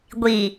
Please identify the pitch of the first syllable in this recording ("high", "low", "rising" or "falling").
low